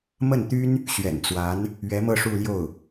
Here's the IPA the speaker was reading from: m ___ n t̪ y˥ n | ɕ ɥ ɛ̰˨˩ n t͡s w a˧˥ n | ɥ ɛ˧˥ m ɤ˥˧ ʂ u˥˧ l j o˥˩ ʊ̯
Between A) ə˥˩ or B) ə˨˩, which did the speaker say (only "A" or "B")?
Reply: A